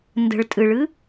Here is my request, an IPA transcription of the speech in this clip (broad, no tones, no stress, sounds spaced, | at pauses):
n d ə̤ ɭ tʼ ɨ ɭ ɨ